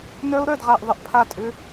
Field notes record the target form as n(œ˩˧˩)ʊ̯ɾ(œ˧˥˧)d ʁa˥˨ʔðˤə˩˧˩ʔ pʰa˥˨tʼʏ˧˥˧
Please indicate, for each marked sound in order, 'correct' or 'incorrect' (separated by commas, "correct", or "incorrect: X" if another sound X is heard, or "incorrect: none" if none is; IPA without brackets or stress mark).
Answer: incorrect: œ˦˥, incorrect: œ˥˨